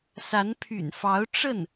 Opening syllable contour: rising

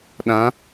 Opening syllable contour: rising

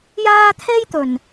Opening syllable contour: high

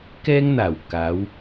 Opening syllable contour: high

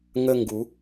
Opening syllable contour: high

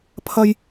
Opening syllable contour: high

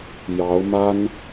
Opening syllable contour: rising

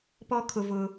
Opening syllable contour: high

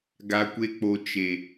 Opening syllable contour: high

